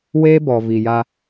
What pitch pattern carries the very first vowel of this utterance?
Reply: high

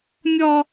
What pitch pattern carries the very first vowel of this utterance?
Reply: high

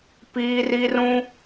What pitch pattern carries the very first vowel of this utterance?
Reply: high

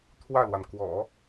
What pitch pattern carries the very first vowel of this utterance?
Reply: falling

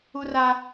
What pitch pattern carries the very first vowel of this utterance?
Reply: high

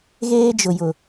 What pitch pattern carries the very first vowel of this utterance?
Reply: high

